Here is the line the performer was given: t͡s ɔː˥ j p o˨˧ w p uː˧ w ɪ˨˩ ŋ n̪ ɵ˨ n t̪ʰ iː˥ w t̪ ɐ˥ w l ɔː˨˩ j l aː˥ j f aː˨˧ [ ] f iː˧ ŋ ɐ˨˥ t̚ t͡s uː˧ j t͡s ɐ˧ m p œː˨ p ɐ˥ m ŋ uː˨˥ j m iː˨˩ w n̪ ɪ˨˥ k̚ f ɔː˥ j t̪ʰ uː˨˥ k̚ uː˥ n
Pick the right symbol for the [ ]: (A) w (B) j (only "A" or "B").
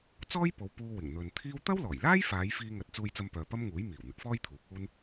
B